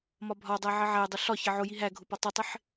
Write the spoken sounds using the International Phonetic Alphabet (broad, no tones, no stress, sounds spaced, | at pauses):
m ɒ bʱ ɒ dˤ æ ʕ ɪ ʕ æ dˤ ʊ ɬ ɒ ç ɪ ʕ ʊ j i ɦ æ ɡʱ ʊ p ɒ tˤ ʊ tˤ ɪ ħ